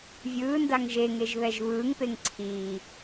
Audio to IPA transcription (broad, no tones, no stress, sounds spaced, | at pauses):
vʲ ɯː n d a ŋ ʒ e ŋ e ʒ β ɛ ʒ β ɯː ŋ p e ŋ ǀʰ iː